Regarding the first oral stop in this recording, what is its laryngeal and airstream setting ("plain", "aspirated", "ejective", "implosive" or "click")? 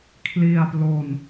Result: aspirated